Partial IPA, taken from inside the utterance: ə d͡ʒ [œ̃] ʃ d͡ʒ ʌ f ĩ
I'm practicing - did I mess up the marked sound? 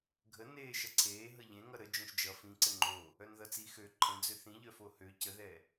no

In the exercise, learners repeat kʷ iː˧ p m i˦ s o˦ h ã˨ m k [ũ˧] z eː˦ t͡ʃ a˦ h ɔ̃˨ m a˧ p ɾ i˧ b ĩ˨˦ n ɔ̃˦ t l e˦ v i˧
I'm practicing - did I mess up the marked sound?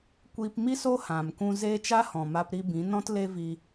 no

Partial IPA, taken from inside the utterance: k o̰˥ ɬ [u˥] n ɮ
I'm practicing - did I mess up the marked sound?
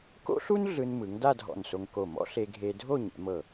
no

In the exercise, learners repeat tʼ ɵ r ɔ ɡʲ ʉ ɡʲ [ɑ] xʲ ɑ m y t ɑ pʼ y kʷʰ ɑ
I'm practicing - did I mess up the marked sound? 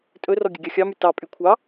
no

